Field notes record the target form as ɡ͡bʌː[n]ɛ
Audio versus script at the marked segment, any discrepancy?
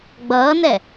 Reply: no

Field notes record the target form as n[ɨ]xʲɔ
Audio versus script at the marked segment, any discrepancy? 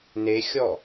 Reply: yes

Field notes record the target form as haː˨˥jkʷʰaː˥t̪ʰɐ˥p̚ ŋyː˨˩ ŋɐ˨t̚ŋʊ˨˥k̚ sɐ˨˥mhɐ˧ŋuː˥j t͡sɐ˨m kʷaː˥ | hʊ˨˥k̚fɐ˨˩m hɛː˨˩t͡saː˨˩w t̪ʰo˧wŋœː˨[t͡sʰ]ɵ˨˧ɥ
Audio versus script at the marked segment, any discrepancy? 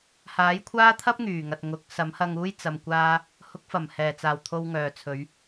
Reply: no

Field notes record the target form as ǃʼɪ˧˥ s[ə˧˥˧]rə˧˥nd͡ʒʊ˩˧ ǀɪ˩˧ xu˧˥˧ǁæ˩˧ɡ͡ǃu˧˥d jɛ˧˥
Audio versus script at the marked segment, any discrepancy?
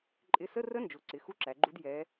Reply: no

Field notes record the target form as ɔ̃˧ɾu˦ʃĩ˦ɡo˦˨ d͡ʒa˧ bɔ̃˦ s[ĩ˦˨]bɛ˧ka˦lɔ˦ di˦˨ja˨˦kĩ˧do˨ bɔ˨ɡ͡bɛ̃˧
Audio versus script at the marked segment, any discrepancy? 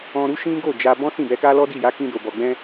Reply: no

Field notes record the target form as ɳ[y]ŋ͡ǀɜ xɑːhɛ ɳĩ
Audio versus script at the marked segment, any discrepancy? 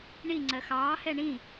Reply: yes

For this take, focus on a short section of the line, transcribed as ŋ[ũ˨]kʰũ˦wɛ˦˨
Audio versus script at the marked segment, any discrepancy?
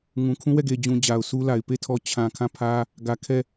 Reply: no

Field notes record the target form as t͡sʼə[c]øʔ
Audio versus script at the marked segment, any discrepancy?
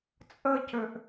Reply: no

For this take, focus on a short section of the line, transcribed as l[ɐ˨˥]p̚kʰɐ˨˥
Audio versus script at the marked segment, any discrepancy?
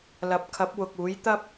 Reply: no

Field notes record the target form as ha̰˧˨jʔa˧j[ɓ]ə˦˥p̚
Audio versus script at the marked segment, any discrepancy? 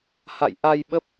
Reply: no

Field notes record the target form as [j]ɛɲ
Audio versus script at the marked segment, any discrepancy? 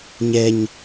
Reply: yes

